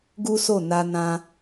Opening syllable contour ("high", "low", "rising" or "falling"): high